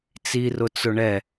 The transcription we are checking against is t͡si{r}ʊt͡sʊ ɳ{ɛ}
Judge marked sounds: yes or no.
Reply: yes, yes

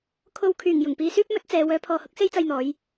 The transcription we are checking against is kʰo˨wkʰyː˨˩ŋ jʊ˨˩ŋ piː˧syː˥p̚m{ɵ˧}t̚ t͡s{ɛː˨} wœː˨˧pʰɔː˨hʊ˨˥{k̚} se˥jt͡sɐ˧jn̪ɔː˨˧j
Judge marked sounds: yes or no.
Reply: no, no, yes

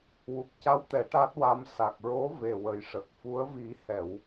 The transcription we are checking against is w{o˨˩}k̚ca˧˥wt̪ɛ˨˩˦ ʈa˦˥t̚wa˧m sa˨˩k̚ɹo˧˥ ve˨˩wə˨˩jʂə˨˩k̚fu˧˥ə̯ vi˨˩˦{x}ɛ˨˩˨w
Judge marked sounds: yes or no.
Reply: no, no

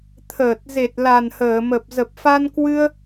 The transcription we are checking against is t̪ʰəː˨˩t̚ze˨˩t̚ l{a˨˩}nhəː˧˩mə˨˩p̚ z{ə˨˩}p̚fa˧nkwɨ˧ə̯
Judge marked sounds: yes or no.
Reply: yes, yes

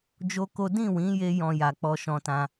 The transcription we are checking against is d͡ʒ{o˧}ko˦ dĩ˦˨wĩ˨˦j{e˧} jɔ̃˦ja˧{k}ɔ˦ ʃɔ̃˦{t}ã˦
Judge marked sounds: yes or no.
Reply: no, yes, no, yes

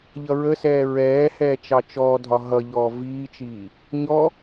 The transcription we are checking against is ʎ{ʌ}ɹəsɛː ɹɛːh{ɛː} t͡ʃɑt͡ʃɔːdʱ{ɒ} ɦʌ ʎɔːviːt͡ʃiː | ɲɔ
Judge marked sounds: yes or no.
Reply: yes, yes, yes

